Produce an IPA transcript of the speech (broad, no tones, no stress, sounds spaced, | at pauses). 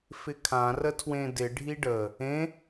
f ɪ kʰ ã r ə tʰ w ẽ d ɪ ɖʱ i ɖ ə | ẽ